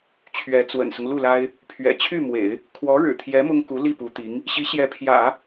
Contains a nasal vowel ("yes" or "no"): no